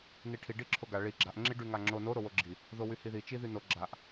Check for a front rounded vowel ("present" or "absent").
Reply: present